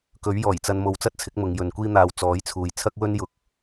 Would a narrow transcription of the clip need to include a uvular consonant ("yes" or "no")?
no